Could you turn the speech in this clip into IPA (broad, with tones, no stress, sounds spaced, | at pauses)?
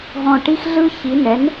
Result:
ɦ ɔ̃˥˨ ʈ i˦ x ɮ ɯ˦ ç i˨˥ n ɛ˨˥ n